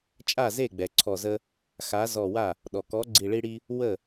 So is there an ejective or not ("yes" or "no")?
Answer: yes